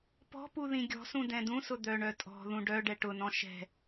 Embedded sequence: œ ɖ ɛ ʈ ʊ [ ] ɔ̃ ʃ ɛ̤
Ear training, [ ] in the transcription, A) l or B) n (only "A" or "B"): B